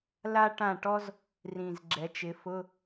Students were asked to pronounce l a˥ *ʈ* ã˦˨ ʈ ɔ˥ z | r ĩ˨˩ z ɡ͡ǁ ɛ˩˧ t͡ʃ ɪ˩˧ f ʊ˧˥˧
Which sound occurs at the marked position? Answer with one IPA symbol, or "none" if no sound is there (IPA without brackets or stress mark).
ʈ